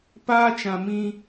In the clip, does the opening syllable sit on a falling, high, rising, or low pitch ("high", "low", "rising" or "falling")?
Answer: high